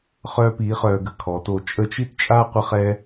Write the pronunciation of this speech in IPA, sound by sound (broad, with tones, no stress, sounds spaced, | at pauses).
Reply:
χ œː˥ p iː˧˥ χ œː˧ ɡ ə˧˥ kʰ ɔ˩˧ t oː˧ t͡ʃʼ ə˥ t͡ʃ i˥ t t͡ʃʼ a˥ qʷ ə˥ χ ɛ˥